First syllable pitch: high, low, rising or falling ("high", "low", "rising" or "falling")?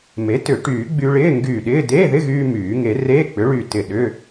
rising